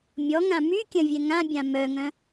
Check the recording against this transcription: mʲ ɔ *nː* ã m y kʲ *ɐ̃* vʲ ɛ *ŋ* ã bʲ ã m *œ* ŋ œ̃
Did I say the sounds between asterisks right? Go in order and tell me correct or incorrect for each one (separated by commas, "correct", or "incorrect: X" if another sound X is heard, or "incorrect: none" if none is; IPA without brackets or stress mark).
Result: incorrect: ŋ, correct, correct, correct